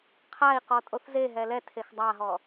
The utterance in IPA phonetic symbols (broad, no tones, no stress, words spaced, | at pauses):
qʰai̯ qɔtʼoθzeɦɛ lɛ tʰexdˤaɦɔ